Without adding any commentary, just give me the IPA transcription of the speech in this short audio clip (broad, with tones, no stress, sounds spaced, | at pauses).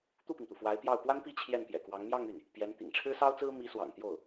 t̪ u˥˩ p i˩ ŋ t̪ u˩ f w a˧˥ ɪ̯ p j ɑ˥˩ ʊ̯ p w a˥ n p i˥˧ t͡ɕʰ j ɛ˥˩ n p j ɛ̰˨˩ k w ɑ˧˥ ŋ m j ɑ˥˧ ŋ y˥˩ n | p j ɛ˧˥ n t̪ ḭ˨˩ ŋ ʈ͡ʂʰ ɻ̩˥ s ɑ˥ ʊ̯ t͡s ɹ̩˥ m i˧˥ s w ɑ̰˨˩ ŋ t̪ j o˥˩ ʊ̯